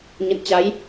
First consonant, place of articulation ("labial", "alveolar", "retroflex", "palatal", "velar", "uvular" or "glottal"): palatal